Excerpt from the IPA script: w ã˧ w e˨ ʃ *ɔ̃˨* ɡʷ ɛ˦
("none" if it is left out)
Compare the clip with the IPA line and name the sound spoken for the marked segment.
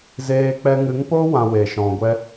ɔ̃˨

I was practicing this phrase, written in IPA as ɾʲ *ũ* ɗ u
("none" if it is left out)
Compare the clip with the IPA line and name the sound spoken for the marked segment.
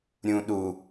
ũ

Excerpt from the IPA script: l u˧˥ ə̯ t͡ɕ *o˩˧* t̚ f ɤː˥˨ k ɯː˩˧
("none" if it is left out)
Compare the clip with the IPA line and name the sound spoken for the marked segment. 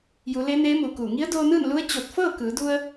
o˧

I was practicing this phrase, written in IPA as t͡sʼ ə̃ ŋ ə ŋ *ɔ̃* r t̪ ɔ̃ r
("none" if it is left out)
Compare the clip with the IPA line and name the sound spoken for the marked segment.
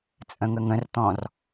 ə̃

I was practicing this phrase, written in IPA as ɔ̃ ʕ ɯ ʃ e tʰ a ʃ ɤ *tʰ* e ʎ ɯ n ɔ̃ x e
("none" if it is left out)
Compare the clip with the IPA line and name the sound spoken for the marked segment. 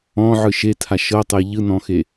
tˤ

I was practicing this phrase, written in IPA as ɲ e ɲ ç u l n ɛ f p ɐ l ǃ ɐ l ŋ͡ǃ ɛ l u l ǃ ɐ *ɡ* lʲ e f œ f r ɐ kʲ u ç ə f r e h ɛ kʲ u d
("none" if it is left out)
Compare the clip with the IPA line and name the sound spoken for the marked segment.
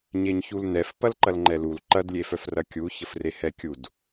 d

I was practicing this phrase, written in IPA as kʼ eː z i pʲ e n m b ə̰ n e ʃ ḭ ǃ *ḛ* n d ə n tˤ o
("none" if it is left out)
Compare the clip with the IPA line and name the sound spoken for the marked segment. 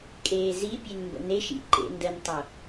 ḛ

